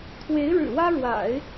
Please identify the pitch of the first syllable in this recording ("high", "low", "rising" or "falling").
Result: rising